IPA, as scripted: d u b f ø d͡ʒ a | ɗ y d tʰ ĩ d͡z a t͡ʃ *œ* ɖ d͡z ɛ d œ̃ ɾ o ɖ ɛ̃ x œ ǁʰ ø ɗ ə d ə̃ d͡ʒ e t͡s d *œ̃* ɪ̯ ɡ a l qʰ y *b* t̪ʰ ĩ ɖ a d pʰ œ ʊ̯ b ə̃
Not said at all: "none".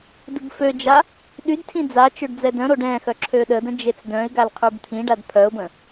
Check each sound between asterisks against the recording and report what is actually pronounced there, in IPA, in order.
ø, œ̃, b

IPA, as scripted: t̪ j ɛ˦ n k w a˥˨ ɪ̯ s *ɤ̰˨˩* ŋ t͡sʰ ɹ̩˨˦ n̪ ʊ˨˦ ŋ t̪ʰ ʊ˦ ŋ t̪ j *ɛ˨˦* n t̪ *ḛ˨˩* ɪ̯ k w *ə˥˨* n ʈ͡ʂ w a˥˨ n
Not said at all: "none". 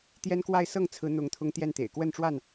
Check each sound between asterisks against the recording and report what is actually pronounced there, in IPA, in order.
ɤ˥˨, ɛ˥˨, ḛ˨˩, ə˥˨

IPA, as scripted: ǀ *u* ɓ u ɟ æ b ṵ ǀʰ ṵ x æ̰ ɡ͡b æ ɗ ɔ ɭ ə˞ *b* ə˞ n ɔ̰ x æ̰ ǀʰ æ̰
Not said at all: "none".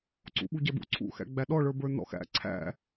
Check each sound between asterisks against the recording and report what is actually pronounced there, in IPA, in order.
ṵ, b

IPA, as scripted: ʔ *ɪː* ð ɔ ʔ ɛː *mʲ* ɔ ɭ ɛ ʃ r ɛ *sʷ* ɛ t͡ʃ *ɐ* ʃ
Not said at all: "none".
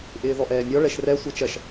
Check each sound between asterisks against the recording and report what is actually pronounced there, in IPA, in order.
ɪː, mʲ, sʷ, ɐ

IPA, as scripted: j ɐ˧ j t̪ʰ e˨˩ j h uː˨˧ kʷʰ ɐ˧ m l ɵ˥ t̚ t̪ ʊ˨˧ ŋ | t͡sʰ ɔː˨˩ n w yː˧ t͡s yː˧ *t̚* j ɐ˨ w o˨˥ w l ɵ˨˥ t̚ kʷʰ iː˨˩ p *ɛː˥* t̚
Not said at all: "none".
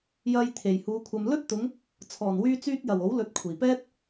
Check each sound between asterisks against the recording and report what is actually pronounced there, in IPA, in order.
t̚, ɛː˥

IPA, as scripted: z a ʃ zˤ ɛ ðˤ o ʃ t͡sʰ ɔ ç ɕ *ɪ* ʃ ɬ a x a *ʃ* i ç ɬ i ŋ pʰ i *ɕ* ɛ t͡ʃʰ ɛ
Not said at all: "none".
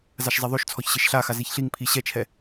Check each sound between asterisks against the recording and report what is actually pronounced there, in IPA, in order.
ɪ, z, ɕ

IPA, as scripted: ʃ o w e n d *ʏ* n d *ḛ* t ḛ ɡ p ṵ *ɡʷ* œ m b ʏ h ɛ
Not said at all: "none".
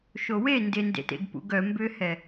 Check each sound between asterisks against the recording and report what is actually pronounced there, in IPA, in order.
ɪ, ḛ, ɡ

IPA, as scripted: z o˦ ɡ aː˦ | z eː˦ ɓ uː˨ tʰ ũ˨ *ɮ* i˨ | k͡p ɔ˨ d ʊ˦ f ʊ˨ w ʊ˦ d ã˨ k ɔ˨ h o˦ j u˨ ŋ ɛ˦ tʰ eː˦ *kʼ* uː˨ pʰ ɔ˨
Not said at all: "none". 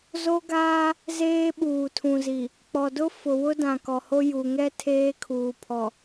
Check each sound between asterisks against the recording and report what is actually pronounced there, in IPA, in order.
z, kʰ

